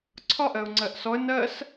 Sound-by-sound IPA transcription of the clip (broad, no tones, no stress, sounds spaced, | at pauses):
ǀʰ ɒ ʔ ɜ ʊ̯ ŋ͡ǀ ɜ ʔ s ɔ ə̯ n ɜ s